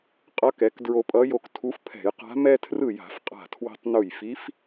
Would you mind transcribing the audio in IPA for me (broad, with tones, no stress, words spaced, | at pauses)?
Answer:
qʼʌ˧˥kɛ˩˥k dɹo˧pʼʌ˧˥jo˧ktʰu˧˥f pʰɛ̤˧˩˧jqa̤˧˥ mɛ˧tʰrɯ˧˩ ja̤˧˩˧fqʼa̤˧˩ tʰwe̤˧tˤnu˧˩jfi˧˥f